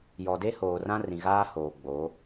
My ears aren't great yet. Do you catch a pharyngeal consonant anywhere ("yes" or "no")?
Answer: no